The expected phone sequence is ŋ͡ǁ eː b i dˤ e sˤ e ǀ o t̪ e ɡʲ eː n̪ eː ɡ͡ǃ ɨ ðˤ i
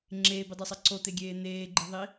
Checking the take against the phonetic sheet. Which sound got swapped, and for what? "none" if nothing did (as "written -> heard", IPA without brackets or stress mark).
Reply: none